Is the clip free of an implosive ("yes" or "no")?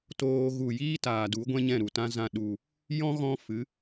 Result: no